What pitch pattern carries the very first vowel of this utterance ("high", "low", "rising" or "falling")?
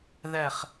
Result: falling